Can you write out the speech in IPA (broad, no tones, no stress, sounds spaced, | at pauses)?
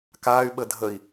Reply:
k aː y̯ ɓ ə dʱ ə i̯